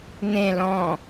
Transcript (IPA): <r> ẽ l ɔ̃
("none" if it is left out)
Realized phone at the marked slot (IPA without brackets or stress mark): n̪